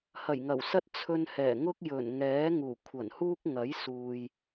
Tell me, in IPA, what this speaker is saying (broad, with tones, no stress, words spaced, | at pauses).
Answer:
hɐ˨˩jŋɐ˨˩wsɐ˥t̚ t͡sʰɵ˧nhɛː˨˩ ŋʊ˥k̚jɵ˨˩nŋɛː˨˥ ŋuː˨˩kʷʰɐ˨˩nhuː˥k̚ ŋɐ˨˥jsuː˨j